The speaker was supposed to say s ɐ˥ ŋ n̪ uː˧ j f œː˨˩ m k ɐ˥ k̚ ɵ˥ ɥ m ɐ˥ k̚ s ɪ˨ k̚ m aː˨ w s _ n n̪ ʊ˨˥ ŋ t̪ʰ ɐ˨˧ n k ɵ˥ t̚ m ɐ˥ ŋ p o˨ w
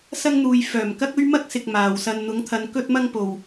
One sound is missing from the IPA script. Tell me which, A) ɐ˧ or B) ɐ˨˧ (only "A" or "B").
A